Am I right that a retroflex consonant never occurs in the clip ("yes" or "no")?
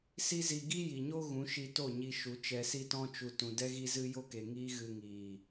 yes